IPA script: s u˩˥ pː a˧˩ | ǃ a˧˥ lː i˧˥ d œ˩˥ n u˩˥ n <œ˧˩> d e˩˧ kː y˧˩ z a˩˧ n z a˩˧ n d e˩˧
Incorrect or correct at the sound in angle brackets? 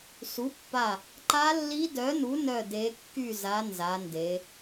correct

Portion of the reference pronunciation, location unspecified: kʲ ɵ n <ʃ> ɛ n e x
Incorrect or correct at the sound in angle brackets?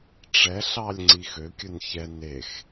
incorrect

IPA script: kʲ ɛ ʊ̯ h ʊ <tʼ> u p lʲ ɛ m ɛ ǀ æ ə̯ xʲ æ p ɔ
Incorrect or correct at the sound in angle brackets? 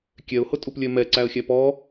correct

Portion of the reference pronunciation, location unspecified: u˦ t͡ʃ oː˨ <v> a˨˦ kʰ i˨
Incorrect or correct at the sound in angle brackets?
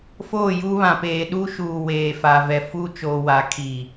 incorrect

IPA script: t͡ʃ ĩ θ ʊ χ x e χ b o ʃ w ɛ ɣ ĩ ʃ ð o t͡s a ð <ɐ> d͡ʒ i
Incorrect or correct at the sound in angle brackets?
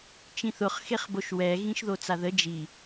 incorrect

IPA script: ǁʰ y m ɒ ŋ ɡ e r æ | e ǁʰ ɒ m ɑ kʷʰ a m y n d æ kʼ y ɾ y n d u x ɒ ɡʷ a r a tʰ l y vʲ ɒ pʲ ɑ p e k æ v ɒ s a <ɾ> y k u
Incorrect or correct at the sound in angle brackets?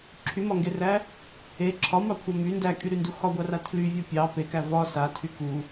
incorrect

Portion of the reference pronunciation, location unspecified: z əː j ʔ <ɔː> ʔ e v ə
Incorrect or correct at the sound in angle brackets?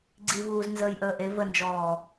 incorrect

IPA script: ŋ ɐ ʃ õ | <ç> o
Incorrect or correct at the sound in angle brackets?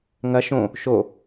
incorrect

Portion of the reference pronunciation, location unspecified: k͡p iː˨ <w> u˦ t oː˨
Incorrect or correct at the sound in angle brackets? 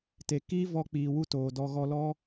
correct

